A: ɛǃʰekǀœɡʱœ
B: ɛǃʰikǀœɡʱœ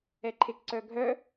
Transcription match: A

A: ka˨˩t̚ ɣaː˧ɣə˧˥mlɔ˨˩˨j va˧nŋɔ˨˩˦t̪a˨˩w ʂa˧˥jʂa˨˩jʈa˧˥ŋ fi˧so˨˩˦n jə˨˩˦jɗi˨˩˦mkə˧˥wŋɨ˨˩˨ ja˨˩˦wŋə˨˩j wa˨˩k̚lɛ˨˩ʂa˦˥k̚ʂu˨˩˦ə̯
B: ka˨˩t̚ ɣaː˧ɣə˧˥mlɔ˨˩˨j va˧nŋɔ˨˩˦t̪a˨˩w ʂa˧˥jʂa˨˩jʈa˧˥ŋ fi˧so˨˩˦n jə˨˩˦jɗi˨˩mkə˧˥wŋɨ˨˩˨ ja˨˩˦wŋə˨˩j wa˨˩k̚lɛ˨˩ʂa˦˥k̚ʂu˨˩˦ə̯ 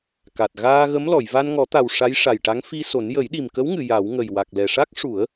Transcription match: B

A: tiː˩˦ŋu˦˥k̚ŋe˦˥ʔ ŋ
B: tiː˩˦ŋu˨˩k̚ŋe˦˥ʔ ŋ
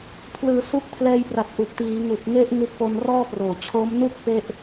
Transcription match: B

